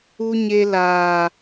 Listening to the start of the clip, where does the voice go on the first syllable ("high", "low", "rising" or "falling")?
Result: high